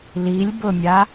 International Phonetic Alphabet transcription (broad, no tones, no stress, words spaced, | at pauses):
lilʲbʊmʲa